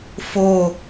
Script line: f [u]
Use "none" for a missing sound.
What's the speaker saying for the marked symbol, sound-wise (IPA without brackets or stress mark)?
o